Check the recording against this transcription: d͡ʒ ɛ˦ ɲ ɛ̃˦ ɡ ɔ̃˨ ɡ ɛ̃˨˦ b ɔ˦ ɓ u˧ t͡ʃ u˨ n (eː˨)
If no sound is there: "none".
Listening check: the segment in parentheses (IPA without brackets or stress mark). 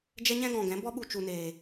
eː˨